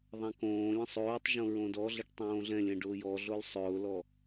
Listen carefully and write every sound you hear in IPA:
ðˤãkõːlʲə̃ sˤoːtˤʒõ ɹõdɔɮəʈ tˤõːɮɛ̃lʲɛ̃ ɖʊːjɔɮol sˤʊːlɔ

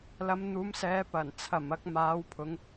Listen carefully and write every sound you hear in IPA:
lɐ˨˧mn̪uː˨˧msɛː˨˧ pɐ˨˩n t͡sʰɐ˨˩m ɐ˧k̚maː˨˧wpʰʊ˨˧ŋ

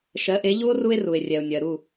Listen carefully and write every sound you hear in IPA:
ʃɜ˩˥ʔe˩˥ ʎu˥o̯ ru˥e̯ru˩e̯ rʲɛ˩o̯nʲɜ˩ɾu˥˩

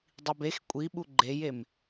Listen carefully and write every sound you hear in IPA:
dˤibex kʷʼiɓu ɡ͡ǃejem

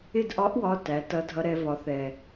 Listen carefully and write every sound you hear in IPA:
ɪ˦˨dʔɒ˧˥ʔwɒ˩˧˩ tæ˩˥ tʌ˧˥dʱʌ˧˥ ɾɛ˩˧vɒ˩˧θɛ˩

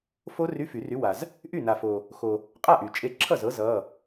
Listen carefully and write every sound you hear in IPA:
fo˦˥ ry˧˥˧fy˨˩˦ry˨˥wa˨z | ʔy˥˩na˨fo˨ | xo˨ | qʼa˥˩ʔy˨˩˦t͡ʃʼe˨˥ ǁʰʌ˥˩zɤ˨˥ zʌ˧˥˧

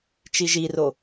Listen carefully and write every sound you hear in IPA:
t͡ʃiʒiro

